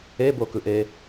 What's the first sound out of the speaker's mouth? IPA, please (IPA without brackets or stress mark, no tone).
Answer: e